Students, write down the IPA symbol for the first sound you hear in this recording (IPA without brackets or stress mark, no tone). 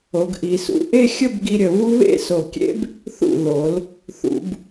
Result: o